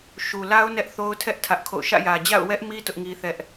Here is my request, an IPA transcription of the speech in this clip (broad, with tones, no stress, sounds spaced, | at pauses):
ʃ u˨ l a˦ ʊ̯ n ɛ˦ ʔ θ o˦ ʊ̯ tʰ ɛ˦ ʔ tʰ ä˦ ʔ kʰ o̰˦˨ ʊ̯ ʃ ä̰˦˨ j ä˨ d͡ʑ a̰˦˨ ʊ̯ w ɛ˦ ʔ m i˦ t ʊ˦ ʔ ŋ i˦ θ ɛ˦ ʔ